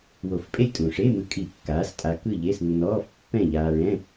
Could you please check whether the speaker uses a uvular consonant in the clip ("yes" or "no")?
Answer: no